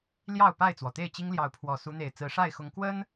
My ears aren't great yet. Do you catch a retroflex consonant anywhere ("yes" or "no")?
yes